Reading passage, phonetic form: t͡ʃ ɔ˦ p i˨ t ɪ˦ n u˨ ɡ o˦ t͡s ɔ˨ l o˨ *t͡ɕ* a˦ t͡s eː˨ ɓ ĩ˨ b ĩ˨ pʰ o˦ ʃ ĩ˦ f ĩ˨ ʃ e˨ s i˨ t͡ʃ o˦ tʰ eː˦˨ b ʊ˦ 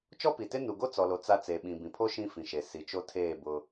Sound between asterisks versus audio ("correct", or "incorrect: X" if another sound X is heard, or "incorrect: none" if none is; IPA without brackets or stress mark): incorrect: t͡s